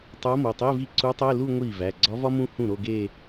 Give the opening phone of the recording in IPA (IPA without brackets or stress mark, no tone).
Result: tˤ